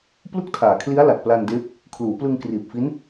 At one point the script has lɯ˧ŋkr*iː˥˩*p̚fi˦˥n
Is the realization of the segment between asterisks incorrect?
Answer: yes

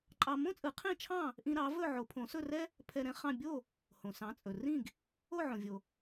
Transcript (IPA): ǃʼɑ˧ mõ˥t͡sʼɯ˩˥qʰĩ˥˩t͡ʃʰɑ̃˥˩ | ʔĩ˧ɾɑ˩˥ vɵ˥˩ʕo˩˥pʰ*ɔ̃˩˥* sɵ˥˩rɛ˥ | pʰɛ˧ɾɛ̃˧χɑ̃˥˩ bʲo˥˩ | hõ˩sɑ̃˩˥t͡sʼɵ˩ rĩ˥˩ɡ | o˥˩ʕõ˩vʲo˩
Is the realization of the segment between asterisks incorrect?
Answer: yes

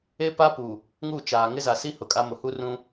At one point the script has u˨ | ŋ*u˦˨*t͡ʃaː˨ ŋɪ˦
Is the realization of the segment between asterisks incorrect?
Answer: no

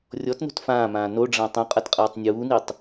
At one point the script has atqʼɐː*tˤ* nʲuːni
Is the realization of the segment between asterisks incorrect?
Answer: no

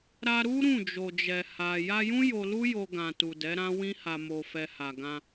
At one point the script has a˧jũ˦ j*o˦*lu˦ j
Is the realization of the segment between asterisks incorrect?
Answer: yes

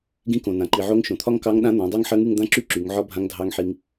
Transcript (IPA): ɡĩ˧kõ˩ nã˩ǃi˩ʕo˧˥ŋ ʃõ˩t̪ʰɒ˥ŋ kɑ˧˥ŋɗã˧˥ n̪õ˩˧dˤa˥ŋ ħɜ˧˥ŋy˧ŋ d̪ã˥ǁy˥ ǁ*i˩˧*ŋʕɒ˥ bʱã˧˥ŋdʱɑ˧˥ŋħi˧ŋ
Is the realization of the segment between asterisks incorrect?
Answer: yes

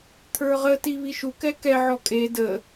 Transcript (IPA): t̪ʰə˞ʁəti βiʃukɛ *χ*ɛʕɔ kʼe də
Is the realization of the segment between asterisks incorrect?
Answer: yes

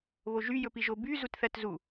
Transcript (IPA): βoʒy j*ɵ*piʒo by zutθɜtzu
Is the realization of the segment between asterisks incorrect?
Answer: no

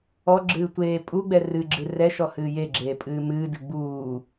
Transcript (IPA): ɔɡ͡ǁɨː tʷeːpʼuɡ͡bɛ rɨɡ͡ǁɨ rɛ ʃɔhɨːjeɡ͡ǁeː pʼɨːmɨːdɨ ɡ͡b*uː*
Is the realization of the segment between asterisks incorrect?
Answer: no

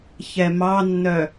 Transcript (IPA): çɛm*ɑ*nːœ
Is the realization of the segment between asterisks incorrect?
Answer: no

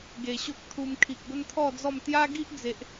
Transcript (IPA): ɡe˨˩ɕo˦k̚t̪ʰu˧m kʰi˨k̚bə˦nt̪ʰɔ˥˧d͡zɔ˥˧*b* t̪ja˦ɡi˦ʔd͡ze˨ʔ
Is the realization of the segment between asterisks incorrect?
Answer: yes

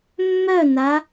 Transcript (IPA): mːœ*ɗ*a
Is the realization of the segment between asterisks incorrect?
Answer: yes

